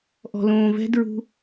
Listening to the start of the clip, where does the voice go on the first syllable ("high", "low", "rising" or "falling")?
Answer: low